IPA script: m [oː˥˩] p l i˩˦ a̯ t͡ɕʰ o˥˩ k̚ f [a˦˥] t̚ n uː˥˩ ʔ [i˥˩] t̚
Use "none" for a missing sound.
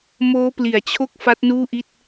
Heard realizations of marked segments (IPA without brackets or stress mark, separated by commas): oː˦˥, a˦˥, i˥˩